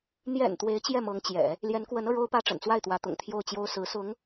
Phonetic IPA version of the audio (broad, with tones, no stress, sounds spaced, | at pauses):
n̪ j ɛ̰˨˩ n t̪ w e˧˥ ɪ̯ t͡ɕ j ɛ˥˩ m ɤ˧˥ ŋ t͡ɕ j ɛ̰˨˩˦ | l j ɛ˧˥ n k w ə˧˥ n ɤ˧ ɻ o˥ ʊ̯ p ä˥ ʈ͡ʂ ə̰˨˩ n t͡s w a˥˩ ɪ̯ t̪ w ä˧˥ t̪ ʊ̰˨˩ ŋ t̪ʰ j o˥˩ ʊ̯ t͡ɕ j o˥ ʊ̯ s ɹ̩˧˥ s ʊ˧˥ ŋ